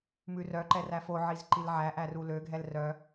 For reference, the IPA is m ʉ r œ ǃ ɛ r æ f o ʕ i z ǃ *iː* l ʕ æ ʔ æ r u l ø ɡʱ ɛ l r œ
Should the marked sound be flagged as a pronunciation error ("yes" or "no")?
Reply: yes